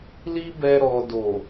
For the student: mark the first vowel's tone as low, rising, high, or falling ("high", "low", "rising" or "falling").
high